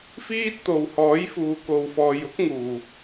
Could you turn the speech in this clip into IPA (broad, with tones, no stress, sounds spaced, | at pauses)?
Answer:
f iː˥ t̚ t̪ o˨ w h ɔː˨˥ j f uː˨ k o˨ w f ɔː˨ j ʊ˥ k̚ ŋ uː˨˩